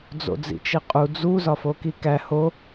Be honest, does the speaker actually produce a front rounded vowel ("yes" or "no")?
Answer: no